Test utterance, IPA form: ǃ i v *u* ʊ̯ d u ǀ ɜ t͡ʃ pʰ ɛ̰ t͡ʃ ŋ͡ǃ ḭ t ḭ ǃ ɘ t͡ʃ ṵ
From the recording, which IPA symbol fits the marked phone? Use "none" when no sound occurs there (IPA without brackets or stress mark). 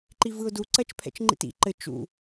ɯ